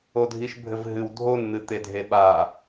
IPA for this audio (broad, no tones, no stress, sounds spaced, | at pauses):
o dʱ i ʃ bʱ ɘ v ɦ ɨ w dʱ o n n̪ ɨ t̪ e dʱ e ɓ a